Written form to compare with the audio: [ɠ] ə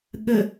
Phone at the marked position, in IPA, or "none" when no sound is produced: ɠ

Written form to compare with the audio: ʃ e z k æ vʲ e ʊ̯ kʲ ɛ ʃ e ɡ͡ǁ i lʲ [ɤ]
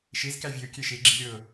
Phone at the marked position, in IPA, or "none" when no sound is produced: ɤ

